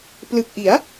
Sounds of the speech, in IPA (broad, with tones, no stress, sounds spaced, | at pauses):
p l ɯ˨˩ k̚ ʔ i˩˦ a̯